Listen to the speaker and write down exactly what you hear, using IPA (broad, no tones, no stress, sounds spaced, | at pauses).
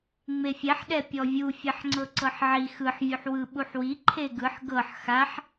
ŋ͡m e fʲ ɛ ħ ɗ ɛ pʲ ɔ vʲ u fʲ ɛ ħ ŋ͡ǀ ɤ ǀ ɤ ħ ʕ i x ɯ ħ vʲ u ħ w ɯ ɓ u ħ w i ǃʰ e ɡ ɯ ħ ɡ ɤ ħ x a ħ